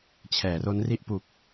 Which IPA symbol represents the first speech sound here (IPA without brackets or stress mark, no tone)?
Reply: t͡ɕʰ